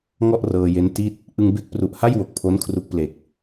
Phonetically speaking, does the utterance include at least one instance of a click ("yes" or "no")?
no